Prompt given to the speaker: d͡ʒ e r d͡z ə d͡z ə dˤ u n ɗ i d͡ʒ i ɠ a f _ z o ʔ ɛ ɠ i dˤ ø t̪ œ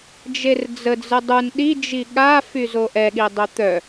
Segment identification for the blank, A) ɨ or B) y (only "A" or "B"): B